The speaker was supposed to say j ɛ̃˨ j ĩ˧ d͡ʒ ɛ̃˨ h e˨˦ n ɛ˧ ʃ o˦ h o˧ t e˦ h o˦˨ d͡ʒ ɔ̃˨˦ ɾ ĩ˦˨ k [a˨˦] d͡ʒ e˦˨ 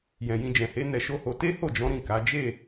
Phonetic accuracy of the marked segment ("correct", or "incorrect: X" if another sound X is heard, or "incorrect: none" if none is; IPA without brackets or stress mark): correct